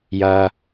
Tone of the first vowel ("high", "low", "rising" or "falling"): low